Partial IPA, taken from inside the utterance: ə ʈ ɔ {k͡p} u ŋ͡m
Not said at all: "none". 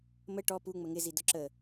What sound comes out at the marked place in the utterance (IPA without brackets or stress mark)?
p